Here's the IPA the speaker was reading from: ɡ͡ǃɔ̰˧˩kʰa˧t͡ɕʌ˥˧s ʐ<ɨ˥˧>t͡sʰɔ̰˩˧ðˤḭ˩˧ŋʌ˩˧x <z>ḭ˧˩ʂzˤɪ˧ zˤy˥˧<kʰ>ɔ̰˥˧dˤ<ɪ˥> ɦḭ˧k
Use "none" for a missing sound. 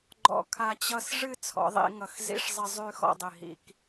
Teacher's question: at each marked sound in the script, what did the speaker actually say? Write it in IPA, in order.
ɨ˥˧, z, x, ɪ˧˩

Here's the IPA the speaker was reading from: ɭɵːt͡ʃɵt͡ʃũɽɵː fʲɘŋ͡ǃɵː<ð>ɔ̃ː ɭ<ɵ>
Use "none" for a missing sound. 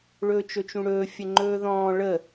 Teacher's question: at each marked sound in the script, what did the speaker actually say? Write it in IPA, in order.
ð, ə

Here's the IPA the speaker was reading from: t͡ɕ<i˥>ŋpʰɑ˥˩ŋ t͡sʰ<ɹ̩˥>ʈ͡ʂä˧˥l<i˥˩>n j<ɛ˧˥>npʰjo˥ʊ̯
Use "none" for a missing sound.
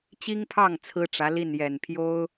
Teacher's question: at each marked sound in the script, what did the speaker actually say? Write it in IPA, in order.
i˥, ɹ̩˥, i˥˩, ɛ˨˩

